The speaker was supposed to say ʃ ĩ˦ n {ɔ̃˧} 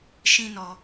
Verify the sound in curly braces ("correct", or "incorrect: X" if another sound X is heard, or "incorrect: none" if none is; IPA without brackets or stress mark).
incorrect: ɔ˧